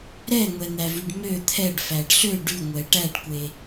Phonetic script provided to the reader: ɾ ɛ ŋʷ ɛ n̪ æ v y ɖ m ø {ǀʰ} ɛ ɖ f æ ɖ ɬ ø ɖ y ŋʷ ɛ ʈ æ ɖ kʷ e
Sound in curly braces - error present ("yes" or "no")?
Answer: yes